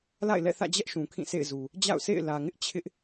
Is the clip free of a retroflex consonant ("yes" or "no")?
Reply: yes